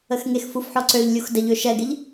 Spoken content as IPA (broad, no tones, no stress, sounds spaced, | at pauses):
ə x ŋ e x f u f ħ ɔ ǀ ø ʎ lʲ u x d ə ʎ ø ʃ ɛ ɡ ɪ ʎ